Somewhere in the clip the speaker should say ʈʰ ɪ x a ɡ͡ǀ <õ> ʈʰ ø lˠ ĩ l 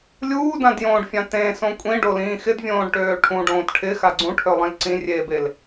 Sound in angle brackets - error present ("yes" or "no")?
yes